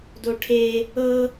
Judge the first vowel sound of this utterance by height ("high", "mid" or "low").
mid